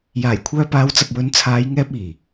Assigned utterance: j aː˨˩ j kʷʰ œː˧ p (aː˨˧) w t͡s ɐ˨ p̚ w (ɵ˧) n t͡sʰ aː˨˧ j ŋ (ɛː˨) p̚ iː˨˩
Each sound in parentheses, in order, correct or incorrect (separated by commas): correct, incorrect, incorrect